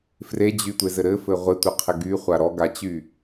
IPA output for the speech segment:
f r e d͡ʑ y tʷ e z ɘ ɾ ɘ f ɘ ʁʷ ɪ tʷ ɪ qʰ ɪ ɡ y χʷ a ɾ ɔ ɡ a t͡ɕ y

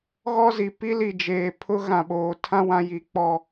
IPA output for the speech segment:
ɣ ɔ˦ z i˨ p i˦ l i˨ d͡ʒ eː˨ pʰ ʊ˦ ɣ ã˨ ɓ oː˨ tʰ ã˦ w ã˦ j i˨˦ k͡p ɔ˦

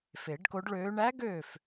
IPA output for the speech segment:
f e˨˩˦ ɖ k o˧˥ ɖ ɭ øː˧˥ ɳ æ˧˥ ɡ øː˥˩ f

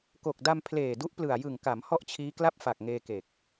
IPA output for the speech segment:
k o˨˩ k̚ d a˧ m pʰ l eː˨˩ d u˦˥ ʔ p l ɯ˨˩ a̯ j ɯ˨˩ ŋ k a˩˦ m h ɔ˥˩ ʔ t͡ɕʰ iː˦˥ k l a˥˩ p̚ f a˨˩ k̚ ŋ eː˧ k e˨˩ k̚

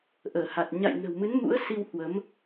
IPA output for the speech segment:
ʔ əː˧˩ h a˨˩ t̚ ɲ a̰˧˨ j n ə̤˨˩ w m ɨ˨˦ n m ṵ˧˥ ə̯ s i˧ w h w ə˨˦ m

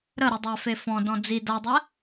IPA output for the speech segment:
ɾ ə ɾ u dˤ a f e f ɔ̃ d ɔ̃ d͡z i d a dˤ ɛ

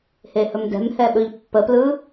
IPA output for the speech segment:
h e h ɵ m d ɛ̤ m h ɛ ɓ ɵ ʎ pː ə p l ɯ

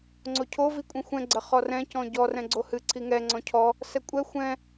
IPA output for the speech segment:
ŋ͡ǀ o cʰ o v i kʷʼ ĩ xʷ ɛ̃ ɡ͡ǀ ɐ χ ɔ r ɛ̃ c ɔ̃ ɟ ɔ r ɛ̃ ɡ͡ǀ o h ɨ ǀʰ i ŋ ɛ ŋ͡ǀ ɔ̃ cʰ ɔ | s ɛ kʷʼ ɛ xʷ ɛ̃

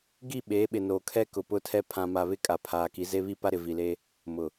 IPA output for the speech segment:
ɡ i˦˨ ɓ eː˨˦ ɓ ɪ˨ n oː˨ kʰ ɛ˦ k ʊ˨ p ʊ˦ tʰ ɛ˦ pʰ ã˨ m a˨ β ɪ˦ kʼ a˨˦ pʰ aː˨ k i˨˦ z e˦ β i˦ p a˦ ɾ ɪ˨ v i˨ l e˦ | m ʊ˨

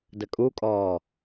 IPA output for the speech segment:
d ə kʼ u kʼ ɔː

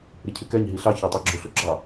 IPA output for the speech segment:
ɾ ɪ cʰ ɪ k ɛ ɲ ɦ i ɬ ɑ ç ɑ tˤ ə˞ ɡ͡ǁ ʊ ɬ ʊ ɡ͡ǁ ɑ

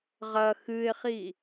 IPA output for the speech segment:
ʁ ɐ x ɨ ɪ̯ χ i

